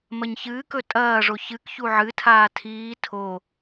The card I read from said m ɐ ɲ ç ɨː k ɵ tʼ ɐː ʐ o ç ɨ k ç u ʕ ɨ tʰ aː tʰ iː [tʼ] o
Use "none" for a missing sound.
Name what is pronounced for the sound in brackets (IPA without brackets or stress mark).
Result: tʰ